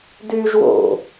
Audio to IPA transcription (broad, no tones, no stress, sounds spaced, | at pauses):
d yː ʒ w o̰